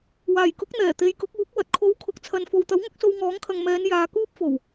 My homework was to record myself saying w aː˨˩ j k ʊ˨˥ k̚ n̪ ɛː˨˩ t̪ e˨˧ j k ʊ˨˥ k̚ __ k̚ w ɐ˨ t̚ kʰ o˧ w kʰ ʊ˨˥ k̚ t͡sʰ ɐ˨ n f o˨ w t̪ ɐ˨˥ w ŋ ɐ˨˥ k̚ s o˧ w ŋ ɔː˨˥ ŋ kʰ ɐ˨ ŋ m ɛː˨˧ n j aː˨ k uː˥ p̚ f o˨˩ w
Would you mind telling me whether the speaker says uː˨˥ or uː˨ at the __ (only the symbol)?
uː˨˥